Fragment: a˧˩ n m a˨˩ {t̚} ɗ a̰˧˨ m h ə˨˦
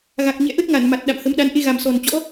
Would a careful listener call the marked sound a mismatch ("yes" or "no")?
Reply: no